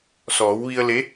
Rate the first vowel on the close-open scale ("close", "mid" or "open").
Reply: mid